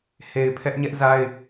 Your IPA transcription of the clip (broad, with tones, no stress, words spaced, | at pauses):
he˨ɪ̯ pʰɛ˦ʔɲɛ˦ʔza˦ɪ̯